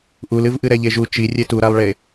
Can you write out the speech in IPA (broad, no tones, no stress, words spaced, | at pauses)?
ʔulɨvʔɨ ɾɛʎeʒu t͡ʃi rʲetuɾalˠɭe